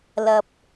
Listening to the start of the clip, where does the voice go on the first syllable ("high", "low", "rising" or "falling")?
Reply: low